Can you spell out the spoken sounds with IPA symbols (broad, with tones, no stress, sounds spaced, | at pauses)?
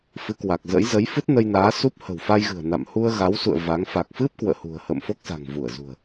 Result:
f ɨ˨˦ k w a˨˩ k̚ z ə̰˧˥ j z ə˨˦ j f ɨ˦˥ t̚ n ə˧ j n aː˨˦ s u˦˥ p̚ h ə̤˨˩ w f a˧ j ɣ ɨ̤˨˩ ə̯ n a̰˧˨ m h u˧ ə̯ ɣ a˨˦ w s ṵ˧˨ ə̯ v a˨˦ ŋ f a˨˩ k̚ f ɨ˦˥ p̚ k w ə̰ː˧˨ h ṳ˨˩ ə̯ h ə̰ː˧˨ m f o˦˥ k̚ s a̤˨˩ ŋ v u˧˩ ə̯ z ṳ˨˩ ə̯